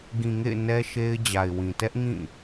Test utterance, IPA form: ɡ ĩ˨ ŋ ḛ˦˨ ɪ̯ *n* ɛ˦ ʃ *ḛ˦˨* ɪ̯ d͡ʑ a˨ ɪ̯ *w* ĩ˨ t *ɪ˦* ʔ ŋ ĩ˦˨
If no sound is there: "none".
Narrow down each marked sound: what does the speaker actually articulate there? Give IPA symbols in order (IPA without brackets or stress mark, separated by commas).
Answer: n, e˦, w, ɛ˦